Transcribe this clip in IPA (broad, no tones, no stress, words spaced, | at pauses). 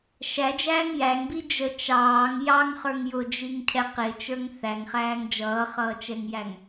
ʃæd͡ʒæːŋ jæŋbi d͡ʒə t͡ʃɑːŋ jɑŋχə˞ŋ jʊd͡ʒiŋcʰɛ qɪt͡ʃə˞ŋ θæŋχæːŋ d͡ʒʌːχʌːt͡ʃɛŋjæŋ